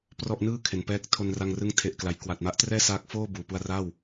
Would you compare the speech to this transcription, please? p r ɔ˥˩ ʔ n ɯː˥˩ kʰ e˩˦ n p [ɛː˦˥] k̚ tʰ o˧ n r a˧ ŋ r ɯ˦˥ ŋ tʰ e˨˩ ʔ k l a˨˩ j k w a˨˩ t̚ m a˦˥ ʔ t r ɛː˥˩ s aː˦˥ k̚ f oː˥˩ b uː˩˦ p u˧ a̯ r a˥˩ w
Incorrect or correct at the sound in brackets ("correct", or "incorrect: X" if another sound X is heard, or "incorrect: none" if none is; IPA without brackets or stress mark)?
correct